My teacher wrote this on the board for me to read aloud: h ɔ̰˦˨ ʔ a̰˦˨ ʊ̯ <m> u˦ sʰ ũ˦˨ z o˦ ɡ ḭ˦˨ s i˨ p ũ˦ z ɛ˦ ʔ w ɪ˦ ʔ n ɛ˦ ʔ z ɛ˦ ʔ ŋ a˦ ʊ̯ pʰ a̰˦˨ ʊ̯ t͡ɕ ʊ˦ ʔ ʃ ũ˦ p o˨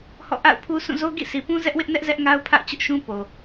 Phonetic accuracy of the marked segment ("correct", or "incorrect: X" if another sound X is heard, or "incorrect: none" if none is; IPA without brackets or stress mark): incorrect: pʰ